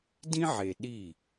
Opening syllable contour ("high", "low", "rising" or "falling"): high